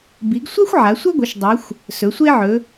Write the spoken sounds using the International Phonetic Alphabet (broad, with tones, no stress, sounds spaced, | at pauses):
b i˩˧ ɡ sʷ a˦ xʷ ʕ a˩˧ sʷ ʌ˦ ɡʷ ʌ˩˧ ʃ dˤ a˩˧ xʷ | s ɵ˩˧ sʷ e˦ ʕ ɵ˩˧